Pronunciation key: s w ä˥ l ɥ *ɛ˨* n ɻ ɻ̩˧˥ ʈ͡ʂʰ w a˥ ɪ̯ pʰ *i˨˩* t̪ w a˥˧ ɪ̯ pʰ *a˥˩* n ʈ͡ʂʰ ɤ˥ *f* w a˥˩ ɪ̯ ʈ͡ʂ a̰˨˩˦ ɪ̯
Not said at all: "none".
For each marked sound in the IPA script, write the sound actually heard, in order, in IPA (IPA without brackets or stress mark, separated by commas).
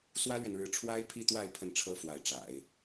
ɛ˨, i˥˧, ə˥˩, f